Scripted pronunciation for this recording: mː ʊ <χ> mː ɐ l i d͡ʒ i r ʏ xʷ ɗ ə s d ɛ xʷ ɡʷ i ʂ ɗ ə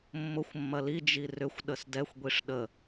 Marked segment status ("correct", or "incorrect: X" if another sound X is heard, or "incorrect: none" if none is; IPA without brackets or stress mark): incorrect: xʷ